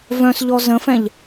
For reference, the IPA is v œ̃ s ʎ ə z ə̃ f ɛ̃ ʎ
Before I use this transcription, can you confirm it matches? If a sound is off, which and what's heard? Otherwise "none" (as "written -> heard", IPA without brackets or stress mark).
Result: ə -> ɔ